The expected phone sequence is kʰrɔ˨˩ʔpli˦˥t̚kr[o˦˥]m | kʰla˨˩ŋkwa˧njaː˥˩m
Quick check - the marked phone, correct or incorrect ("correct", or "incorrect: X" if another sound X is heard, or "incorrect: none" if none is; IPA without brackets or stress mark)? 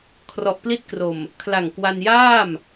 incorrect: o˨˩